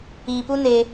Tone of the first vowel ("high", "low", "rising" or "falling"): low